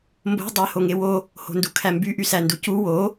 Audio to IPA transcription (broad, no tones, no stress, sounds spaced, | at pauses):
m b o̤ dˤ æ h o ŋ e w o | h o̤ n d u kʰ æ m b y ʔ y s æ n d u c u w o